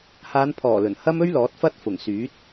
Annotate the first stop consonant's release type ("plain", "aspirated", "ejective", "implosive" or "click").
aspirated